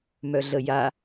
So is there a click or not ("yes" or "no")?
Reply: no